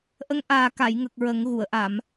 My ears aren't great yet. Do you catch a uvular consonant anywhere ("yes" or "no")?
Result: no